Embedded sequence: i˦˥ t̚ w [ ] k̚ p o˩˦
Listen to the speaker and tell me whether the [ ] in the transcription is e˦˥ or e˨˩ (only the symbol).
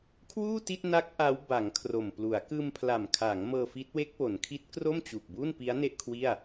e˦˥